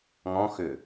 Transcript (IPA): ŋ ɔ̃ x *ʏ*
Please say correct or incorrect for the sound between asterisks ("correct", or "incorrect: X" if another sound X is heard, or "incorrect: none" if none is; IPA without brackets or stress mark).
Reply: correct